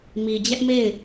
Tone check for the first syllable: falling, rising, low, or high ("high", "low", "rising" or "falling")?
low